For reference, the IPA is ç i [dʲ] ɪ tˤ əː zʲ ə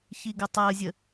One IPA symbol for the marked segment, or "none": ɡ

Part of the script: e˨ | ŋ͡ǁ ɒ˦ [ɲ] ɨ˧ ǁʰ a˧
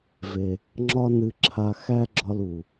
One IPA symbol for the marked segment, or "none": n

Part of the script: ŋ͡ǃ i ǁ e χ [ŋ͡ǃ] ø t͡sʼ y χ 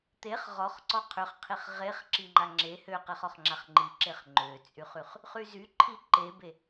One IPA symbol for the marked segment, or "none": ŋ͡ǃ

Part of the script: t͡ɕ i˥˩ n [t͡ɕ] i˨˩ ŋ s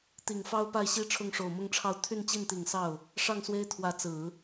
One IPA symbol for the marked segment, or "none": t̪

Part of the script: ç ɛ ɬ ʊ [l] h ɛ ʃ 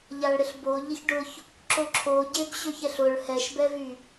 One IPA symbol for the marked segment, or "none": ɭ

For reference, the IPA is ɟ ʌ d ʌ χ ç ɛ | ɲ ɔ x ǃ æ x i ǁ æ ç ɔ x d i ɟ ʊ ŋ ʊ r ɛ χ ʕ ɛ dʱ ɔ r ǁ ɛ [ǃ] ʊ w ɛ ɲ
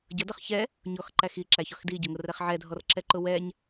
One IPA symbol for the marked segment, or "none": ǃ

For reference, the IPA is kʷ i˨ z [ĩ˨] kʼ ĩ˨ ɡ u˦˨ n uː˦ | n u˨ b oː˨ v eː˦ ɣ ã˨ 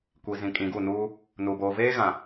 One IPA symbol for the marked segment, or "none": ĩ˨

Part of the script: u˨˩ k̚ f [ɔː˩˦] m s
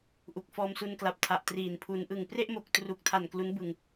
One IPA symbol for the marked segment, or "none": ɔː˧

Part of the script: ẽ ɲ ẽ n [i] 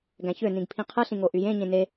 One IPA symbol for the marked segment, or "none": e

